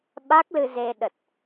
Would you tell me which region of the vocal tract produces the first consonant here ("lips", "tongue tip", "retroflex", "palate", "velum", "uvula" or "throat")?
lips